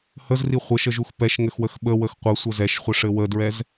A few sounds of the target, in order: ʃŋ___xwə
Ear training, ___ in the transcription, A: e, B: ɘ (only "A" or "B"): B